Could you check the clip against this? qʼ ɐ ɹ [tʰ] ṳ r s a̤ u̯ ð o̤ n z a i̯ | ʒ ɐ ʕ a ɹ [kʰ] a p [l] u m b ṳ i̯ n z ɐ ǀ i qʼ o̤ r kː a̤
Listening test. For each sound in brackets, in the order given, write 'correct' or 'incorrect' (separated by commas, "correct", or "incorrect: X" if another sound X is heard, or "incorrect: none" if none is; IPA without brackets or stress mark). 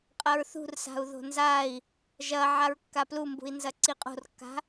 incorrect: θ, incorrect: kː, correct